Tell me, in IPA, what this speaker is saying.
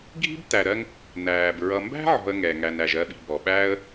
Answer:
ɡʱi̤˥btæ˨ɾɜ˦ŋ | næː˩bɹʌ˨ mbæ̤˥ʕɔ̤˨ə̯ŋɛ˩ ŋæ˨næ˨ʒɜ˦ɓi̤˨ bɔ˩ɓæː˥ə̯

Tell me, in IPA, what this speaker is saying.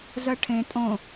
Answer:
zɜʈʰẽ tʼõ

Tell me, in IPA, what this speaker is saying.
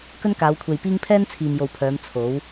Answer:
kɵ˥nkaː˨˧wkʷʰe˨jpiː˥ŋ pʰɛː˥n t͡sʰiː˨mjo˨wpʰœː˨˧m t͡sʰo˨˥w

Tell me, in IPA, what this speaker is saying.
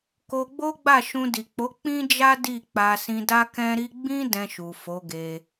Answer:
ko˧ɡ͡bo˦ ɡ͡ba˦˨ʃũ˧ di˨ k͡po˨˦ k͡pĩ˦d͡ʒa˦ di˦˨k͡pa˧ sĩ˧da˦kɛ̃˦ɾi˦ ɡ͡bĩ˦ dɛ̃˧ʃu˨ fo˨˦ɡe˧

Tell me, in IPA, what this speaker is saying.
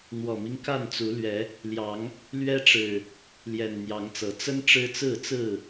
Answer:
n̪wɔ˨˩mi˦ŋka˥˨nt͡su˨˦ lɥɛ˨˦ | ljɑ˨˦ŋ | lɥɛ˦ʈ͡ʂɻ̩˨˩ | ljɛ˨˩n n̪jɑ˨˦ŋt͡sɤ˨˦ t͡sə˦n ʈ͡ʂɻ̩˦t͡sɹ̩˥˨t͡sɹ̩˥˨

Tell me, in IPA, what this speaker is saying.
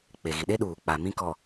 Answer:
k͡pe˨ɣi˨ɗe˦ ɗuː˨k͡pa˨ mĩ˦kɔ˨

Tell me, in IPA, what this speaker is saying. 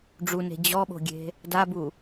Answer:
ɖ͡ʐune̤ d͡ʑɔɓo̤ɡʲe̤ | dabu

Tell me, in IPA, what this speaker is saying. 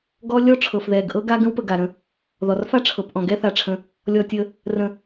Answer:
ɡɔ˦ lʲɔ˥ʈ͡ʂʰɤ˩fðɛ˩ɡ ʔɤ˦ɡa˦ ɡə̃˥wpə˨ ɡa˩ɾə̃˨ | ðɔ˩rfa˥ʈ͡ʂʰɤ˩pʔɔ̃˩ ɡɛ˥θa˨ʈ͡ʂʰə̃˨ | lʲɔ˨tʲə˨ | rə̃˨

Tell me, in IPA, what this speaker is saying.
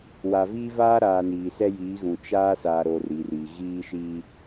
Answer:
wa˨viː˦vaː˦ɾaː˨ niː˨sɛ˦jiː˨˦ɣũ˨ t͡ʃaː˦sa˨ɾo˨ riː˨ri˨ ɣiː˦ʃi˦

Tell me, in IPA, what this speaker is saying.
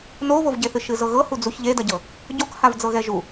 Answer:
noβovɟeθɨ ʃɨzɤɣɤ hud͡zuç ʎedɐɟɤ | ɟokhav d͡zɤɣɛʒu

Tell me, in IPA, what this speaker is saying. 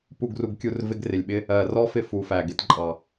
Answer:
pu˦˨ɡru˧ɡkʲu˦˨r vɪ˦ɡrɪ˨lʲɓɪ˦ | ɜ˨rɔ˦ fɪ˦ fu˨˦fæ˨ ɡɪ˧tǃʼɑ˨

